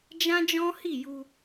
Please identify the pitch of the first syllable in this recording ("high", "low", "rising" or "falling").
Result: high